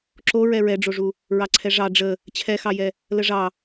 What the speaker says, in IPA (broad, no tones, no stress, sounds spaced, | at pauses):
ǁ o ɹ ɛ ɹ ɛ ɖ͡ʐ o ʐ u | ɹ ɑ ǀʰ ɛ ʐ ɑ ɖ͡ʐ ə | t͡ɕʰ ɛ x ɑ j ɛ | l ə ʐ ɑ